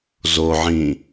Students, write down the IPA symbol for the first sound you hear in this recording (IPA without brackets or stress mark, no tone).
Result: z